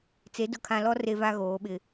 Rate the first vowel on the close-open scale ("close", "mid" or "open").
mid